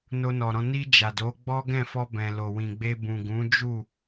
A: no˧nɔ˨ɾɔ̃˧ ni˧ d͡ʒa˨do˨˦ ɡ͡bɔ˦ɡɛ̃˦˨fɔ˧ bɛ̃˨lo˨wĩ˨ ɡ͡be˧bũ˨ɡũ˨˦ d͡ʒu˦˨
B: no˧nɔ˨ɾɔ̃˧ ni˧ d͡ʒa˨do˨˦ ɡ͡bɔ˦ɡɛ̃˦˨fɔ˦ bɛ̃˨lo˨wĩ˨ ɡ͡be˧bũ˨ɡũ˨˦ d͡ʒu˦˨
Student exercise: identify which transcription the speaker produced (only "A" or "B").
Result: A